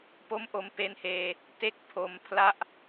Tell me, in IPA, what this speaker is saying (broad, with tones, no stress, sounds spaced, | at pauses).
p o˦˥ m ʔ o˧ m p e˦˥ n h eː˧ | t e˥˩ k̚ pʰ o˧ m pʰ l a˥˩ ʔ